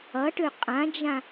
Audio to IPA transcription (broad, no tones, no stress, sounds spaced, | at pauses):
ʌ ʈ ø qʼ ã d͡ʒ ã